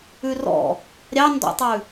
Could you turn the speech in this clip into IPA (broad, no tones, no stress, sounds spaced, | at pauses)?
ʉ r ɔ̰ | ɾʲ ɑ n d ɔ̰ tˤ ʉ